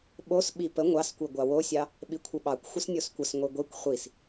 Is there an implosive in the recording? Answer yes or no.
yes